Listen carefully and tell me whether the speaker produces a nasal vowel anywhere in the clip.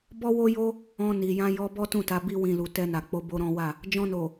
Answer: yes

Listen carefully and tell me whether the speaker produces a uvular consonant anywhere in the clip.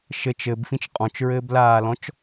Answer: yes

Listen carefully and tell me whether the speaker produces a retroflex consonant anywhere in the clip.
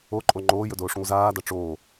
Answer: yes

